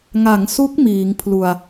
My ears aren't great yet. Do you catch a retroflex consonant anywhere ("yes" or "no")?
no